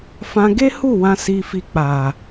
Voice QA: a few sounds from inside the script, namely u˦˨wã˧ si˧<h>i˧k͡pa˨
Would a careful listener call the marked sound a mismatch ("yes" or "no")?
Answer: yes